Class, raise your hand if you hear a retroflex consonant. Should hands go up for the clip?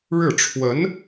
yes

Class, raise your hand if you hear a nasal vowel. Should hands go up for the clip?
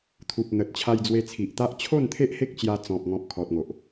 yes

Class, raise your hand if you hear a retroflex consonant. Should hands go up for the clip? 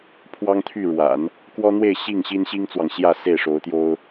yes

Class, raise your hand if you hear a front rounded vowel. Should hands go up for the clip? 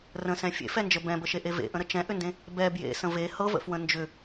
yes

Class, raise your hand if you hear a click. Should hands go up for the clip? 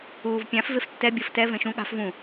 no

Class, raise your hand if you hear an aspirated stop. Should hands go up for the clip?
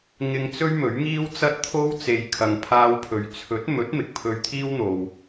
yes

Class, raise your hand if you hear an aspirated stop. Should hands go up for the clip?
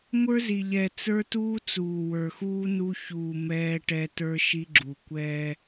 no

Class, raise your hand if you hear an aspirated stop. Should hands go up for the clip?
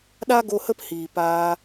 no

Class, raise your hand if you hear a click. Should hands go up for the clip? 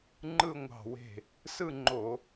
yes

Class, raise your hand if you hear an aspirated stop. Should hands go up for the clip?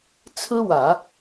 yes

